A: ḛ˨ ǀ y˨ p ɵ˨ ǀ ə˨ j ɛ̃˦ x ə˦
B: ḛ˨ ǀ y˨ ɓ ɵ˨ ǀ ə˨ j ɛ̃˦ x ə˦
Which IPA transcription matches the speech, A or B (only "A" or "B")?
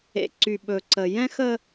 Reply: B